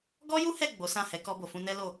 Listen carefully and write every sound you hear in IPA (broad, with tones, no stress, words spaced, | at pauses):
ɡɔ˦ju˦hɛ˦˨ ɡ͡bo˨˦sã˦˨hɛ˨˦ kɔ˧bo˨fũ˧ nɛ˦lo˦˨